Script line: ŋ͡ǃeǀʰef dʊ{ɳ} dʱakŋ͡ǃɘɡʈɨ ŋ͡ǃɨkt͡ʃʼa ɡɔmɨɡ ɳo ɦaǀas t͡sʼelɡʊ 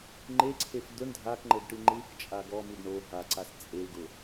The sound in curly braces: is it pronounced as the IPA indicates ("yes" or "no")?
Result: yes